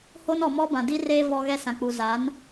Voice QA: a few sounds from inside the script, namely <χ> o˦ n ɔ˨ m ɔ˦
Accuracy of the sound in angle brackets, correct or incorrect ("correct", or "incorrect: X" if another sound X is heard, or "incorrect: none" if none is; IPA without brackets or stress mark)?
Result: incorrect: h